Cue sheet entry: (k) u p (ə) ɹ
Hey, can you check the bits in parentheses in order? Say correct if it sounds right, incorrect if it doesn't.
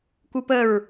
correct, correct

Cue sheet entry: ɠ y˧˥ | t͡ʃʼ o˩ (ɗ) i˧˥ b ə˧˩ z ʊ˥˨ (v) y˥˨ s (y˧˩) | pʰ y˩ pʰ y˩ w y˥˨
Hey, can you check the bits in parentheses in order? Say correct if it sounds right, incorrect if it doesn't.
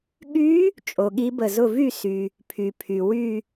incorrect, correct, incorrect

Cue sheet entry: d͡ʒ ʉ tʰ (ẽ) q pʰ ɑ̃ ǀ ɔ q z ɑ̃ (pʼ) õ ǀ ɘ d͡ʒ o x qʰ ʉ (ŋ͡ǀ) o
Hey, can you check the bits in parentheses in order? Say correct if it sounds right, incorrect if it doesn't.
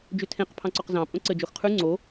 correct, correct, correct

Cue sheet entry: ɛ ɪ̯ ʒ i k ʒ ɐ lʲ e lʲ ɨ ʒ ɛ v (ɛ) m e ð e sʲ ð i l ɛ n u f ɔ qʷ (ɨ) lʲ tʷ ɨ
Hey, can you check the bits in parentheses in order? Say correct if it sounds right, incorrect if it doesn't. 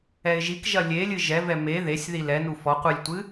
correct, correct

